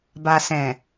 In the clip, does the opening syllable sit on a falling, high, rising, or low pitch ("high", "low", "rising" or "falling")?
low